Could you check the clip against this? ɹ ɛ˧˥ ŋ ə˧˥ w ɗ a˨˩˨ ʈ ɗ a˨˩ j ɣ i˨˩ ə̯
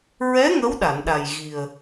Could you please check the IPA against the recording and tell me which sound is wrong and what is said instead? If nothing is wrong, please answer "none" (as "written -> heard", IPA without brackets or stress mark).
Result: ʈ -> n